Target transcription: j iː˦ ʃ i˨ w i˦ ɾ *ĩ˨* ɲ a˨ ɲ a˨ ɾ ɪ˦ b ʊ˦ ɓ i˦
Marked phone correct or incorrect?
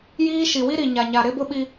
incorrect